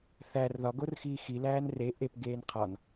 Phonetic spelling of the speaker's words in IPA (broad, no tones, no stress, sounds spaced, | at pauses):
θ æ r ð ɒ ɡ o r x iː x i l æː n r e ʔ e p ɡ eː n qʰ ɒ n